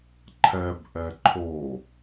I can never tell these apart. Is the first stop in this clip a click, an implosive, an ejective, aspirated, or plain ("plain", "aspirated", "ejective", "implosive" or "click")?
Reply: click